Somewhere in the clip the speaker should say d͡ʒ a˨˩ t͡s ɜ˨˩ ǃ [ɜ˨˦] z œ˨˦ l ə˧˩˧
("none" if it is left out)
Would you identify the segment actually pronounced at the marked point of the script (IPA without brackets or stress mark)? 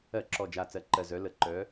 ɜ˨˩